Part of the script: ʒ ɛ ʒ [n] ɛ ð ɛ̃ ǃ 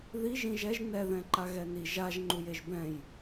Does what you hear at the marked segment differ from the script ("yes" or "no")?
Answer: no